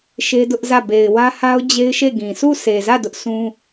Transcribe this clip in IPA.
ʃ e˦ d ʊ˦ ʔ z ä˦˨ b e˨ ɪ̯ w ä˦ h a˦ ʊ̯ d͡ʑ e˦ ɪ̯ ʃ e˦˨ ɡ ĩ˨ s u˦˨ sʰ e˨ z ä˦˨ d ʊ˦ ʔ sʰ ũ˦

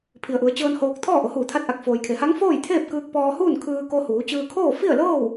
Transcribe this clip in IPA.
pʰ i˩ ə̯ ʔ u˩˧ ə̯ t͡ɕ ɤː˧ n h oː˧ k̚ t̪ʰ ɔː˥˨ ʔ o˩˧ h uː˧˩ t̪ʰ a˧˥ t̚ ʔ a˧˩ k̚ f oː˩ j kʰ e˩˧ h a˧˥ ŋ f oː˥˨ j t̪ʰ eː˥˨ p̚ k ɯː˧ k̚ p ɔː˧ h uː˥˨ n kʰ ɯː˧ k o˧ h uː˩˧ t͡ɕ ɯː˧ kʰ oː˥˨ f i˥˨ ə̯ l ɤː˥˨ w

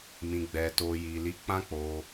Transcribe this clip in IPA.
m ĩ˨ ɡ͡b ɛ˨ t o˨ j i˨ l i˨˦ k͡p ã˦ k͡p o˧

